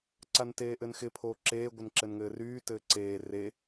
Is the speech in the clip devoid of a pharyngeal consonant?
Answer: yes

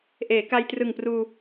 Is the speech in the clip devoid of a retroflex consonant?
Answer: yes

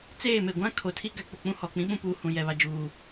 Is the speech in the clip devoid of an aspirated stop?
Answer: no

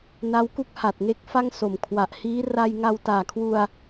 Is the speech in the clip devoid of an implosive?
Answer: yes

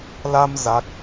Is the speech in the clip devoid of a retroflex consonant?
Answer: yes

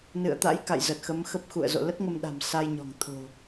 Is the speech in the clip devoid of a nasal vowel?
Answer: yes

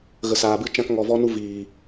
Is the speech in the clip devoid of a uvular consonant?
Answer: yes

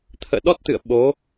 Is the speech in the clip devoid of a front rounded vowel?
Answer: yes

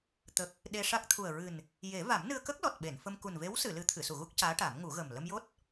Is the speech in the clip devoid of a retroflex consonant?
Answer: no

